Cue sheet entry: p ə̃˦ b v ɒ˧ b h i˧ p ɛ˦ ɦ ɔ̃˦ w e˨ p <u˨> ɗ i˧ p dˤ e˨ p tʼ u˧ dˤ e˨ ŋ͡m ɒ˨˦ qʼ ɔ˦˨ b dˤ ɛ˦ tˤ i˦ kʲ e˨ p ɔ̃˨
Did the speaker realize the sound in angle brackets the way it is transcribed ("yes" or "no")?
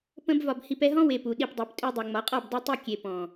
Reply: yes